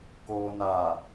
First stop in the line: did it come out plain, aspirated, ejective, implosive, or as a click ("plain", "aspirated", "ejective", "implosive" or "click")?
plain